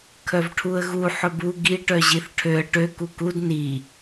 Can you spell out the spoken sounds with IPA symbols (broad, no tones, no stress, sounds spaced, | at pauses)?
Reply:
kʰ œ v ʈʰ u ə̯ ɣ u ħ ɵ b u ɡ i ʈ œ ʑ i θ ʈʰ ø ə̯ ʈ ø k u k u d n i